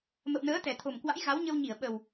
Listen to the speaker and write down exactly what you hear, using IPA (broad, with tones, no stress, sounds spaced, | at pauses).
m ə̰˧˨ w n əː˨˦ t̪ ɛ˨˩ t̪ʰ o˨˩ m k w a̰˧˥ j ɣ a˨˦ w ɲ ə˧ w ɲ i˧˩ ə̯ ɓ ə˨˩ w